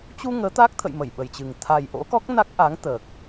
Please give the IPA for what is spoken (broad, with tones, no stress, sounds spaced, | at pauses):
t͡ɕ u˧ ŋ əː˨˦ t̪ aː˦˥ k̚ t̪ʰ ə̰˧˨ j m ə˧˩ j ɓ ə˨˩ j t͡ɕ ɨ˨˩ ŋ t̪ʰ a˨˩ j ʔ o̰˧˥ k ɔ˦˥ k̚ n a˦˥ k̚ ʔ a˨˦ ŋ t̪ əː˨˩ k̚